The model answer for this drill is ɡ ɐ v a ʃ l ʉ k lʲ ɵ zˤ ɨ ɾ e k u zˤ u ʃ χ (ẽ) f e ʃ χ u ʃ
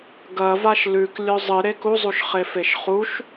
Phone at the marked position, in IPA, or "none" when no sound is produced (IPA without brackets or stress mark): e